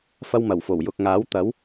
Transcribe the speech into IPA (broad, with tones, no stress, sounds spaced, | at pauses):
f ɐ˥ w m ɐ˨˩ w f o˨˩ w j ʊ˨ k̚ ŋ aː˨˥ w t̪ ɐ˨˥ w